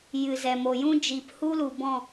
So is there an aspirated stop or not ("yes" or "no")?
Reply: no